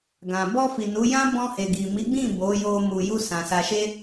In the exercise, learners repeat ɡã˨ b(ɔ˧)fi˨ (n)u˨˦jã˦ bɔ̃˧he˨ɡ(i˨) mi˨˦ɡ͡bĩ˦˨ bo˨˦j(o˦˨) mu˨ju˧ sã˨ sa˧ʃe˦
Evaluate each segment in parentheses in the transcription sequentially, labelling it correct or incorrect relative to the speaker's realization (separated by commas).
correct, correct, correct, incorrect